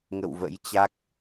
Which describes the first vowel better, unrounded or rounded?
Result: unrounded